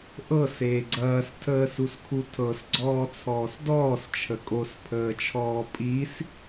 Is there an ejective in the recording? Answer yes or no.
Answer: yes